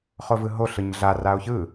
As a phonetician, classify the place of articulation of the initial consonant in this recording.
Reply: uvular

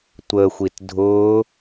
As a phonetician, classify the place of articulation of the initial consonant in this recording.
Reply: alveolar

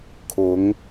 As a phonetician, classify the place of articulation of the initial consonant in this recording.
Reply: velar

